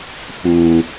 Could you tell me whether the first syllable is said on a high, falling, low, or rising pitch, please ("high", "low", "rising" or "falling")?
low